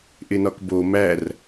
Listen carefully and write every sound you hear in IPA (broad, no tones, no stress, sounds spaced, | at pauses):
ʔ ɪ n ɒ k b o m æ r